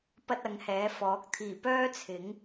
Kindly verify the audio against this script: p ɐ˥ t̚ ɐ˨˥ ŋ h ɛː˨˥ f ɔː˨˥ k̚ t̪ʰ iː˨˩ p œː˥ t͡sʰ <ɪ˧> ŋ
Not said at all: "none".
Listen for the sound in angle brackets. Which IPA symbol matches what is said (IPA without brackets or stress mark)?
ɪ˨˥